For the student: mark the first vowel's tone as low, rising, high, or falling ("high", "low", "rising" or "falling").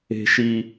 low